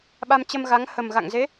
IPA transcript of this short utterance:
ɓ a˧ m t͡ɕ ə˧ m ɣ a˨˦ ŋ h ə˨˩ m ɣ a̰˧˨ ŋ z e˨˦

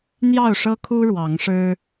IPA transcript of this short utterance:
n̪ j ɑ˥˨ ʊ̯ ʂ ɤ˦ kʰ u˦ ɻ w ɑ˨˦ ŋ ʂ ɻ̩˦

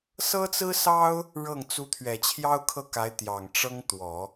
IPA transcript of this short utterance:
s ɤ˥ t͡s ɹ̩˥ s ɑ˥ ʊ̯ | ɻ ɤ˥˩ ŋ t͡s u˧˥ t̪ʰ ɥ ɛ˨˩ t͡ɕʰ j ɑ˥ ʊ̯ kʰ ɤ˥˩ k a˧˥ ɪ̯ t̪ j ɑ˨˩ ŋ ʈ͡ʂ ɤ˥ ŋ t̪ w ɔ˨˩˦

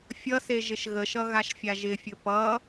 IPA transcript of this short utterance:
fʲ ʌ s e ʒ ɪ ʃ ɣ ə ʃ ʌ ɣ a ʃ fʲ a ʒ ɪ fʲ ɵ p ʌ

